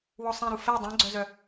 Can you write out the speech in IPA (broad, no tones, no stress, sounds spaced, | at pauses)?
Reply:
w ɔ sˤ ẽ ɾ u f ɛ dˤ ẽ ɡ͡ǀ œ z œ